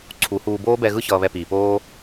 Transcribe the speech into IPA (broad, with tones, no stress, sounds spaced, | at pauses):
ǀʰ u˩˥ h uː˧ b oː˦˥ b ɛ˧ ɣ ɯ˦˥ ç ʌː˧ β ɛ˧ p iː˩ p oː˦˥